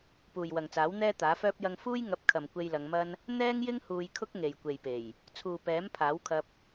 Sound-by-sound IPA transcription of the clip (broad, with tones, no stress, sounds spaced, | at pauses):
p uː˨ j w ɐ˨ ŋ t͡s aː˨˥ w n̪ ɛː˥ t̪ aː˨˥ f œː˥ p̚ j ɐ˧ ŋ f uː˥ j ŋ ɐ˨˥ p̚ kʰ ɐ˨ m kʷ e˧ j l ɐ˨˧ ŋ m ɐ˥ n | n̪ ɛː˥ ŋ j ɪ˥ ŋ h uː˧ j kʰ ʊ˥ k̚ ŋ e˨ j kʷ e˨ j p e˨˩ j | t͡sʰ uː˨ p ɛː˨˥ m pʰ aː˨˥ w kʰ ɐ˧ p̚